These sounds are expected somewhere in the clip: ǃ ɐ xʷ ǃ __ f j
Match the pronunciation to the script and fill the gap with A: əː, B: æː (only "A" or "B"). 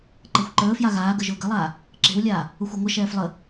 A